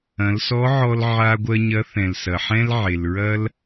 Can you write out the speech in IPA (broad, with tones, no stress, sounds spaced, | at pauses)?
ɐ̃˩˧ l s ɔ˧˥ ʕ ɔ˧ l ʕ a˧ ɡʷ ɜ˧ ɲ ɐ˧˥ θ ɛ̃˩ l s ɐ˩ ħ ɛ̃˥ l ʕ e˩ l ɹ ɐ˥ l